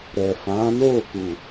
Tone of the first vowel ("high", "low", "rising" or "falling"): low